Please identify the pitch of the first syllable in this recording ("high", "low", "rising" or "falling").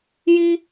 high